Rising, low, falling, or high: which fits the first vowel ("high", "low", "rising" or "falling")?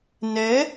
rising